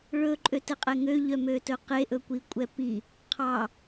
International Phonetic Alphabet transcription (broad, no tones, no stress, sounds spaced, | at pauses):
ɭ ɵ ǃʼ ø t ɛ qʼ ɛ ŋ ø ʎ œ m ø t ɵ q e ʔ ɵ kʷ i kʷʼ ɛ p i | qʰ ɑ